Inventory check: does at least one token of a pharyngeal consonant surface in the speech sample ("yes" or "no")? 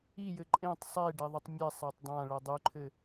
no